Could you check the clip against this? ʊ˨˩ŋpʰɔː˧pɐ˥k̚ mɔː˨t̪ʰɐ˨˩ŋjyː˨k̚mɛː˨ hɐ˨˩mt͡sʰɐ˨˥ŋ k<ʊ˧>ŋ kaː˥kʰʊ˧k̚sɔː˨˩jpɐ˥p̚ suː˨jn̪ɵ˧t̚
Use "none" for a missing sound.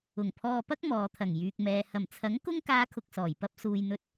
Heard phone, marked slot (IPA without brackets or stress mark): ʊ˥